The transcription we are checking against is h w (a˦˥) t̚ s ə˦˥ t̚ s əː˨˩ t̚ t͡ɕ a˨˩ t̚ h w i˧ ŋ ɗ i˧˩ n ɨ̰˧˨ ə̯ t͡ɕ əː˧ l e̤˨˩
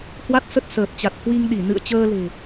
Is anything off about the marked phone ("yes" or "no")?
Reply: no